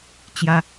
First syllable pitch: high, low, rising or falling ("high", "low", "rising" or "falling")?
high